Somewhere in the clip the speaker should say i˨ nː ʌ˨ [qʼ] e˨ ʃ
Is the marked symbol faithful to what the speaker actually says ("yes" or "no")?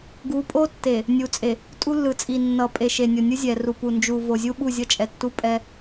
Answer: no